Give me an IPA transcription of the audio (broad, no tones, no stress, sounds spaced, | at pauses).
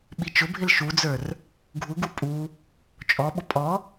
ɓ i t͡ʃ ʊ bʱ ɪ l ʃ u d͡z ə˞ r | ɡʱ u ɡ u pʼ u | t͡ʃʼ ɔ ɓ ʊ pʼ ɔ